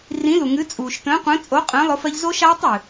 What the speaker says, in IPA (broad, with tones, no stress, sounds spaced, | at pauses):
r ĩ˨˥ l u˩ ŋ ɨ˨˥ t͡sʼ uː˩ ʃ t ə̃ː˨˥ qʷ ə̃ː˨˥ t͡sʼ o˨˥ qʼ ə̃ː˨˥ lˠ ʊ˨˥ f ɜ˦˥ ʎ z o˦˥ ʃ aː˦˥ tˤ ɨː˩